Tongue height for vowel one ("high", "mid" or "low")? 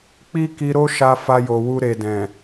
high